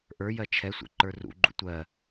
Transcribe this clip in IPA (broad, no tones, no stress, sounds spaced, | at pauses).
ʔ ə˞ j ɜ t͡ʃʰ ɛ sʷ ɛ̰ ǃ ə˞ r ṵ ɡ͡ǃ ṵ tʷ ɜ